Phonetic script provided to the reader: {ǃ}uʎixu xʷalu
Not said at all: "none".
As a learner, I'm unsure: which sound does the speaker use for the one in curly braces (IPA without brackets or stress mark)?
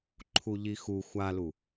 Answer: ǃʰ